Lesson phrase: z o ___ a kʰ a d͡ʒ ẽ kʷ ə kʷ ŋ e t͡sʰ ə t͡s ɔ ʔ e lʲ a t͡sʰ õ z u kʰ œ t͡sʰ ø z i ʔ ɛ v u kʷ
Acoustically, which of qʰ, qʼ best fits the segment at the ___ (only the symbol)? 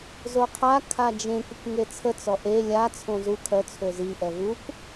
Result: qʰ